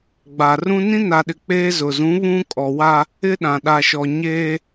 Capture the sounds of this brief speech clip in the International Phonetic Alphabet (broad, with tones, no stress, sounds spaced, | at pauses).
ɡ͡b a˨ r ũ˦ n ĩ˦ n a˨ ɗ ɪ˨ k͡p eː˦ z ʊ˨ z ũ˨˦ β ũ˦ kʼ ɔ˨ w a˦ | ɪ˦ ɗ ã˨ ɗ a˨ ʃ ɔ˨ ɲ eː˦